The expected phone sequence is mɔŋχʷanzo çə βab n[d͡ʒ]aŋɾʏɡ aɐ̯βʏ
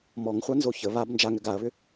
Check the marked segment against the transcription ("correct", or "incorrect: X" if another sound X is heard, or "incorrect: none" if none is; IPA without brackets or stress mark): correct